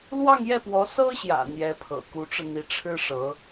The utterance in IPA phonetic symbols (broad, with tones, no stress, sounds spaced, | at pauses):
l w ɑ˥˧ ŋ j ɛ˥˩ p w ɔ˧˥ s ɤ˥ ɕ j ä̰˨˩ n̪ j ɛ˧˥ pʰ ɤ̰˨˩ k u˧˥ ʈ͡ʂ ɻ̩˧ n̪ i˧˥ ʈ͡ʂʰ ɻ̩˥ ʂ ɤ˧˥